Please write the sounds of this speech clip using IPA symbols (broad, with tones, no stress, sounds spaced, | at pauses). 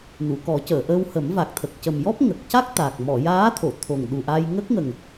n u˨˩˨ k ɔ˨˩˦ c əː˨˩˨ ʔ əː˧ w h ə˨˩˦ m v a˨˩ k̚ t̪ʰ ə˨˩ k̚ c ə˨˩ m j ɔ˦˥ p̚ ŋ ə˨˩ k̚ c a˦˥ k̚ t̪ a˨˩ k̚ m ɔ˨˩˨ j aː˧˥ t̪ʰ o˨˩˨ t̪ʰ o˨˩ ŋ ɗ u˨˩ ʔ a˧ j ŋ ə˦˥ k̚ ŋ ə˨˩ ŋ